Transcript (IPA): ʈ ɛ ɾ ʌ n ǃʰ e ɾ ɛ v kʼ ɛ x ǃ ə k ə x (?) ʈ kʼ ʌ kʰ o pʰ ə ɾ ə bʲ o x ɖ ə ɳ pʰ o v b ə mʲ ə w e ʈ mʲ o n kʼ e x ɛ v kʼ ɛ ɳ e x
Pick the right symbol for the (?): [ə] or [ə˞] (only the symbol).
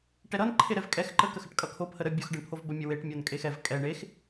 ə